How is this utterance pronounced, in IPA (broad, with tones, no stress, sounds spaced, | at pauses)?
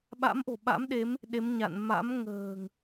ɓ a̰˧˥ m ʔ o̤˨˩ ɓ a̰˧˥ m ɗ e˨˦ m | ɗ e˨˦ m ɲ a̰˧˨ n m a̰˧˥ m ŋ ə̤ː˨˩ ŋ